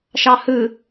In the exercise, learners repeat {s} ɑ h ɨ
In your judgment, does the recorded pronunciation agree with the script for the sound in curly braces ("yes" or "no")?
no